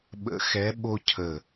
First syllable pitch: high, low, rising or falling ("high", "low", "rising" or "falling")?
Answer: rising